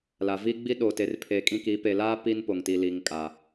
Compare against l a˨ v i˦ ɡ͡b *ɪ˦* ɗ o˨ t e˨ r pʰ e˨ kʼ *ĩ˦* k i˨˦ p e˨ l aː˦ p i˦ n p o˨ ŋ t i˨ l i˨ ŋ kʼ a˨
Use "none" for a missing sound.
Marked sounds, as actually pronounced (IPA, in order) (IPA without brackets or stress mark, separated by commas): i˦, ĩ˦